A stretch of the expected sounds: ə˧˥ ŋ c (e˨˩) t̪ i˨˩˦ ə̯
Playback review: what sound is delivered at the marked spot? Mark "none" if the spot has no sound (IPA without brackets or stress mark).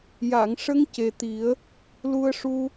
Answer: e˨˩